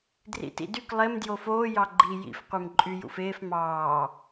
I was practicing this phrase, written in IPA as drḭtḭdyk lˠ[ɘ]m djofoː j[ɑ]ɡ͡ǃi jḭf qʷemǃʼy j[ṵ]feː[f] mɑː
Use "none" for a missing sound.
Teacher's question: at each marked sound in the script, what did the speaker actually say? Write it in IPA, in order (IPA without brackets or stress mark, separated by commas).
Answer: e, ɑ, ṵ, f